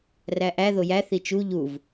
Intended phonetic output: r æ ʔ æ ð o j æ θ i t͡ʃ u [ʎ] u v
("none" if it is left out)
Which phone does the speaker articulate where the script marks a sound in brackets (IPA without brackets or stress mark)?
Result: ʎ